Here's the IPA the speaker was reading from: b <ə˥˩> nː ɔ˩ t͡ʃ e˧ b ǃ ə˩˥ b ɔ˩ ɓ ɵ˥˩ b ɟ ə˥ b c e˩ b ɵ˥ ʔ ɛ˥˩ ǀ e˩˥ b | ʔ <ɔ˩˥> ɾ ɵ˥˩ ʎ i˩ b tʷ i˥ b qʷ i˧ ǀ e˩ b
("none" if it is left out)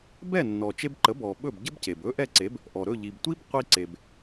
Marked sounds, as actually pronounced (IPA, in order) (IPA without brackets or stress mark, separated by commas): ɛ˥˩, ɔ˩